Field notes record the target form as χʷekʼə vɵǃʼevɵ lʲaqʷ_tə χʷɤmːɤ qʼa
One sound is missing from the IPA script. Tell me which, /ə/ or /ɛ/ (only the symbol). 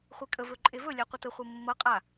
ə